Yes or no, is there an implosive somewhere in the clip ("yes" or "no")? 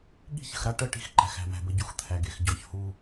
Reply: yes